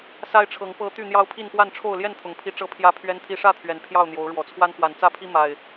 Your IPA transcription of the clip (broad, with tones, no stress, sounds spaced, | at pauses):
s a˦ ɪ̯ ʈ͡ʂʰ ɤ˨˦ ŋ p ɤ˦ t̪ y˥˨ n̪ j ɑ˦ ʊ̯ pʰ i˥˨ n p w a˥˨ n ʈ͡ʂʰ o˥˨ ʊ̯ l j ɛ˥˨ n t̪ʰ ʊ˨˩ ŋ pʰ i˨˦ ʈ͡ʂ ɤ˦ pʰ j ä˦ pʰ ɥ ɛ˦ n t̪ʰ i˦ ʂ ä˥˨ t̪ʰ ɥ ɛ˨˩ n pʰ j ɑ˥˨ ʊ̯ n̪ j o˨˦ ʊ̯ ɻ w ɔ˨˩ t͡sʰ w a˦ n x w a˨˩ n t͡s ä˥˨ pʰ i˦ m a˨˩ ɪ̯